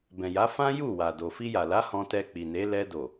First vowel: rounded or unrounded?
unrounded